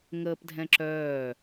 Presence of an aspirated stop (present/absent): absent